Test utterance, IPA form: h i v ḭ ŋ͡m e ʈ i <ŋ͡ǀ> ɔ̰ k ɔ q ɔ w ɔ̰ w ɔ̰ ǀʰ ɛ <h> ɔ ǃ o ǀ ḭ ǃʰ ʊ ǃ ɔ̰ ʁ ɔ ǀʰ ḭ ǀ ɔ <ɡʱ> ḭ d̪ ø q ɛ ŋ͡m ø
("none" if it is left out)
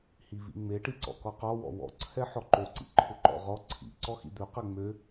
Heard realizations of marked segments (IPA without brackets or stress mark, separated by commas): ǀ, ħ, x